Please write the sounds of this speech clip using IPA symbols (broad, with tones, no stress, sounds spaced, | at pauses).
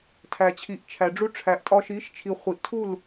tʰ æ˨ t͡ɕʰ i˨ ʔ t͡ʃʰ æ˨ ɖ͡ʐ u˧ ʈ͡ʂʰ æ˨ ʔ tʼ ɒ˧ ʃ i˨˦ ʃ t͡ʃʰ i˨ χʷ i˨ ʔ tʰ u˦˨ l